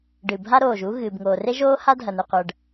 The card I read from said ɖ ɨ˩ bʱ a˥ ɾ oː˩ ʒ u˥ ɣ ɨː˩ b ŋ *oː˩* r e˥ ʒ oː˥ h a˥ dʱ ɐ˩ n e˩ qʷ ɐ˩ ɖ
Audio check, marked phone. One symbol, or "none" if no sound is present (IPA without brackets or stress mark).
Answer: oː˩